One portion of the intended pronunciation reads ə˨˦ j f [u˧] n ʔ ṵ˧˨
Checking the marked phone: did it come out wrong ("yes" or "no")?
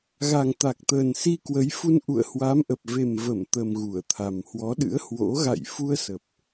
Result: no